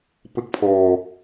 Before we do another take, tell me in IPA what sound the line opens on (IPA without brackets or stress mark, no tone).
p